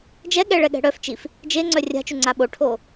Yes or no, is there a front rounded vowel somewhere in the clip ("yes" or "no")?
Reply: yes